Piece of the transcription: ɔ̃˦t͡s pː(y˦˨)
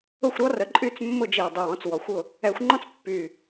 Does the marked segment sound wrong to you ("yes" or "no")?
yes